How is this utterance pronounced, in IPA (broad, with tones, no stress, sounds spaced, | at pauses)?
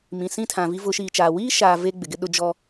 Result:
m ĩ˨ s ĩ˦ tʰ ã˨ v i˦ v ʊ˨˦ ʃ iː˨ t͡ʃ aː˨ w iː˦ ʃ aː˨ v e˦ ɡ͡b ɪ˨ ɡ ɪ˦ ɗ ʊ˦ d͡ʒ ɔ˦